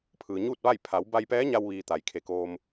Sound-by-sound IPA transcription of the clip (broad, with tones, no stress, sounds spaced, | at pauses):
pʰ ɯː˩ ɲ uː˥˨ t̚ ʋ a˥˨ j pʰ a˩˧ w b a˧ j p ɛː˧˥ ɲ a˧ w ʋ iː˧ t̪ a˩ j kʰ e˧˩ k oː˧ m